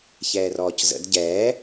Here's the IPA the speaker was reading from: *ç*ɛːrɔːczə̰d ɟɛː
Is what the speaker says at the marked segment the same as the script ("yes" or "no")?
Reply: yes